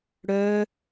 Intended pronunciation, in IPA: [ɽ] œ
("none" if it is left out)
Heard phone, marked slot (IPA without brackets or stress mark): ɽ